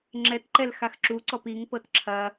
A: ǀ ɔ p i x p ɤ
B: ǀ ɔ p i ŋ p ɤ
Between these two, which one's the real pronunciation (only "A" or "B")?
B